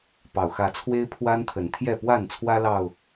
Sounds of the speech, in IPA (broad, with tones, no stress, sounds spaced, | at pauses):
p ɑ˨˩ ʊ̯ x ä˨˦ t͡sʰ w e˦ ɪ̯ pʰ w a˦ n t̪ʰ ə˨˦ n t̪ʰ j ɛ˥˨ p w a˥˨ n t͡sʰ w ä˦ l ɑ˨˩ ʊ̯